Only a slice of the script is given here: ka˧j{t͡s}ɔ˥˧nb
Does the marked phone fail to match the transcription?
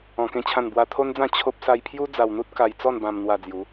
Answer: no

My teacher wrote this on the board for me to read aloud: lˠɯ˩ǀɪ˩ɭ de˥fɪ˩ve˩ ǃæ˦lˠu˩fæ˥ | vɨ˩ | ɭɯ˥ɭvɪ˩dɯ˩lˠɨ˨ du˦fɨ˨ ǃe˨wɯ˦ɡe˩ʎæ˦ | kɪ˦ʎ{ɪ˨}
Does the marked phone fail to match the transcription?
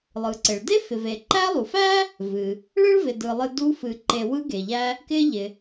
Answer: yes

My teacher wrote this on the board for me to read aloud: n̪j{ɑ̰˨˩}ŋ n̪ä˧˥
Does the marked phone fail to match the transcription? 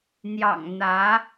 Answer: no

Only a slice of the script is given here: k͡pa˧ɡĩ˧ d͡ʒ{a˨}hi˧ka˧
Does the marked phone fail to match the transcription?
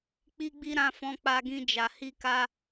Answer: no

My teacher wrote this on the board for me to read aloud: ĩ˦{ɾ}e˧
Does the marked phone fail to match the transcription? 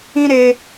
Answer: no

